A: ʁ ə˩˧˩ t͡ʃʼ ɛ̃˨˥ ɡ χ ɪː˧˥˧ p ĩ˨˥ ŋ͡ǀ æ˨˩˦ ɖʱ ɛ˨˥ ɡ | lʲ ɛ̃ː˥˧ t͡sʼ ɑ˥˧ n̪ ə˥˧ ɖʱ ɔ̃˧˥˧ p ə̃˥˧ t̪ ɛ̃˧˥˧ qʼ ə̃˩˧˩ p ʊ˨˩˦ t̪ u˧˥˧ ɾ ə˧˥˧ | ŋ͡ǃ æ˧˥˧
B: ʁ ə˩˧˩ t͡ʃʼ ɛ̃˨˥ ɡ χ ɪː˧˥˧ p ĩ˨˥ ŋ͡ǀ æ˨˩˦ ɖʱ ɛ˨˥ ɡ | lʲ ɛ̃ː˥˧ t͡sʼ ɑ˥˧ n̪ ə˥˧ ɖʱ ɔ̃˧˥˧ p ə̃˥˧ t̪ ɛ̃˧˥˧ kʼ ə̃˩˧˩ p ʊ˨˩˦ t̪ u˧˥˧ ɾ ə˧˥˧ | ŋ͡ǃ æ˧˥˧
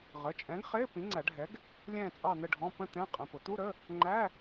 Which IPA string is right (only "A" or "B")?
A